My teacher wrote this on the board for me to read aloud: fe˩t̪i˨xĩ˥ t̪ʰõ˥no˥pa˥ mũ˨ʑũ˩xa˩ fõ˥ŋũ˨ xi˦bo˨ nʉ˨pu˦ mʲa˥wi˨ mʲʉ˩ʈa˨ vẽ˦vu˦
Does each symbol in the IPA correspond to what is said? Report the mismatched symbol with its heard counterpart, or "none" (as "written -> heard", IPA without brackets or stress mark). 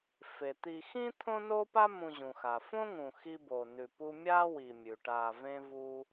none